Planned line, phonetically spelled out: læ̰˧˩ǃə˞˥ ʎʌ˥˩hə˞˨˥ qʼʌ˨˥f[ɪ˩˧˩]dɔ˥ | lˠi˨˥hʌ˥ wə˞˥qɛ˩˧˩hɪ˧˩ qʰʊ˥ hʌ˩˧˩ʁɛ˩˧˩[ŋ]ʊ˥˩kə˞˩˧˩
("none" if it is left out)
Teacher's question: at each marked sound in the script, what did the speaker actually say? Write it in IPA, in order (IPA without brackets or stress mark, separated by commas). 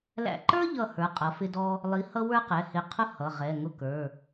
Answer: ɪ˥, ŋ